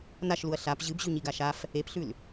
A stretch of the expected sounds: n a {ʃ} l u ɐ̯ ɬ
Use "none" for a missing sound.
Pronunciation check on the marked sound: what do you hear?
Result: ʃ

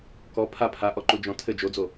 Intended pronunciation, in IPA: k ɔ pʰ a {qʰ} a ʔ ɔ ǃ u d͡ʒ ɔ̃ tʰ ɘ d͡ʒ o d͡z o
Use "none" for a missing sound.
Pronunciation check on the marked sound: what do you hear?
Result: pʰ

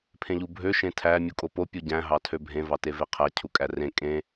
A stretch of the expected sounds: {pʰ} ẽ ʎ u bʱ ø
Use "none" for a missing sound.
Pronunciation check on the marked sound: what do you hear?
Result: pʰ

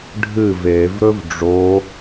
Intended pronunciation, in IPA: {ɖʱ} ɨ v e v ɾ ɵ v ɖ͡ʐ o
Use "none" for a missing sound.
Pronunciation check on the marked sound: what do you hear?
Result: ɖʱ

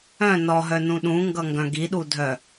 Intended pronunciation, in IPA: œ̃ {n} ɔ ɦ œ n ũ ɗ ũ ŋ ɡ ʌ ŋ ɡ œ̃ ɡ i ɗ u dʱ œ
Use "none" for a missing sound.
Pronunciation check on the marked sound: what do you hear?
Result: n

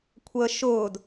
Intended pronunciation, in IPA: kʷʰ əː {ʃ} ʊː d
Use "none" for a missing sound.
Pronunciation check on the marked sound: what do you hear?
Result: ʃ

